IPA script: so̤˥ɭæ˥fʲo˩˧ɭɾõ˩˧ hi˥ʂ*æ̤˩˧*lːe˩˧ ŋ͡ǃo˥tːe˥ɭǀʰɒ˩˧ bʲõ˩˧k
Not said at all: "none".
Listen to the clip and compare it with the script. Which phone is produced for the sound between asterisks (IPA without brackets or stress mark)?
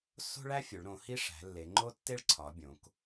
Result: æ̤˩˧